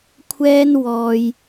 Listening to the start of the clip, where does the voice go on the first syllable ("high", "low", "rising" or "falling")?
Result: high